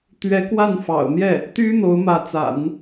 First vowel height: mid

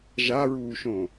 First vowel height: low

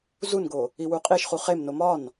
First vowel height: high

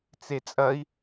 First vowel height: mid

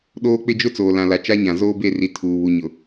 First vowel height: mid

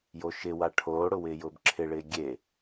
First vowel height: mid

